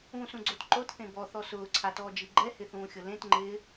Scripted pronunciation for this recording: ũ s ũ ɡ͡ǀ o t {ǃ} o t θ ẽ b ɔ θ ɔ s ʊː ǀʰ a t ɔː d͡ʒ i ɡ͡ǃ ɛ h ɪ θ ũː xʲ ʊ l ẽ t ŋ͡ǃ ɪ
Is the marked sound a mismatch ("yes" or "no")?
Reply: no